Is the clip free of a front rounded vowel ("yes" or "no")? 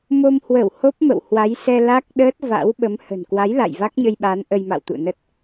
yes